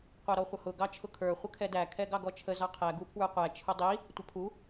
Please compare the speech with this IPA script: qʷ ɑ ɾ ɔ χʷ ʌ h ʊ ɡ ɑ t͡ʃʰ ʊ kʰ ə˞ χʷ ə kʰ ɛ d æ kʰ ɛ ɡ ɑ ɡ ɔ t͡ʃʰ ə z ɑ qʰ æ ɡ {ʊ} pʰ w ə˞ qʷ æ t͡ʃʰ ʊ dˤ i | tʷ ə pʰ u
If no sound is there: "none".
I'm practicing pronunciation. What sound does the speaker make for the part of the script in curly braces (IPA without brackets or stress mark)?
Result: u